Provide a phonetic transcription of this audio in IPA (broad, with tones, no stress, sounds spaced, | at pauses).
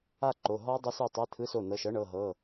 a˥˧ ǃ o˩˧˩ ɦ ɔ˦˥ dˤ e˦˥ s u˩˧˩ tˤ e˧˥˧ t̪ʰ ɯ˧˥˧ s o˩˧˩ n ɤ˩˧˩ ʃ ɤ˦˥ ɳ ɤ˩˧˩ ɦ ɤ˩˧˩